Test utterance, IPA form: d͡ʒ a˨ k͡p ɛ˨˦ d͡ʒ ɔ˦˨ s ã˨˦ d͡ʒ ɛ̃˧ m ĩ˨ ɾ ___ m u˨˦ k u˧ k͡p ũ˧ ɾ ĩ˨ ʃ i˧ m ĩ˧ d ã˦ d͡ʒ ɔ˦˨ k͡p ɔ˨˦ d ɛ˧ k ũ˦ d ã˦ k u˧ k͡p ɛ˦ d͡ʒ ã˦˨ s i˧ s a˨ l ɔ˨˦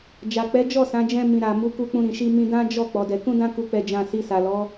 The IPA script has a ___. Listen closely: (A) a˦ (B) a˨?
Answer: B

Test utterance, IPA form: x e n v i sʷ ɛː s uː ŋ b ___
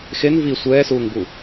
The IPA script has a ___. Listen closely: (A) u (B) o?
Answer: A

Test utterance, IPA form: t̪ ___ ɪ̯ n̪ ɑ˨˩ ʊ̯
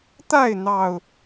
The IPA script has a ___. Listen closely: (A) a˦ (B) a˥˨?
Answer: B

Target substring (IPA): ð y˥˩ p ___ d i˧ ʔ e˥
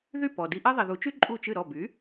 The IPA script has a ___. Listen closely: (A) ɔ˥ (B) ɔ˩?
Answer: B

